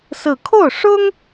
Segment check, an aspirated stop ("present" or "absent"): present